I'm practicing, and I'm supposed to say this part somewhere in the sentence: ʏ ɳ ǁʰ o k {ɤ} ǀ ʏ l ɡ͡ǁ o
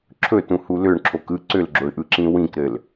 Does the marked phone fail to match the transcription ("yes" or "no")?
yes